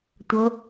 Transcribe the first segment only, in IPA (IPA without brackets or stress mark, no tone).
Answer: tʷ